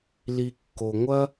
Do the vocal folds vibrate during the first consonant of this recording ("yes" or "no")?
yes